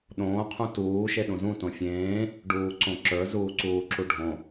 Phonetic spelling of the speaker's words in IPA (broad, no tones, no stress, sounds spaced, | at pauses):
ɗ õː qʰ ũ t uː ʃ e ɗ ũ z ũ t õ fʲ ẽː | ɖ uː ǀ õ ǁ ə˞ z uː ǀ uː ǁ u ɖʱ õ